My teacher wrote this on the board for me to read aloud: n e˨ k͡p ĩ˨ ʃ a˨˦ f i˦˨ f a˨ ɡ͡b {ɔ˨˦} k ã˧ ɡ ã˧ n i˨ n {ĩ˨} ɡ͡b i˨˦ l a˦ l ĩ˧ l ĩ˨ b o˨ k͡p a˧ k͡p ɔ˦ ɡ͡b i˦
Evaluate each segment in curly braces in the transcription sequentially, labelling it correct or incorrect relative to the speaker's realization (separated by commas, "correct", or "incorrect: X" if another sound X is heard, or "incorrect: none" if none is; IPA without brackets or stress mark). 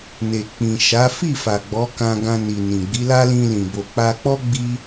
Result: correct, correct